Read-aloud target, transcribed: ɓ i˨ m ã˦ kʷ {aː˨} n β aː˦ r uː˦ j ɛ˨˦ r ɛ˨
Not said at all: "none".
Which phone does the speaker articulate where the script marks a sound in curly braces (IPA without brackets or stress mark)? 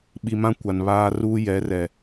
a˨